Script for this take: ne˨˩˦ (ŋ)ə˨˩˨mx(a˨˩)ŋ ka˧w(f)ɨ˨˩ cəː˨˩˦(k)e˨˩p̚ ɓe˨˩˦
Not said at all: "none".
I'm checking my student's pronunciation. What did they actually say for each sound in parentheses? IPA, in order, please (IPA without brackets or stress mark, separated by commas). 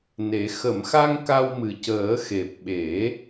x, a˧, m, x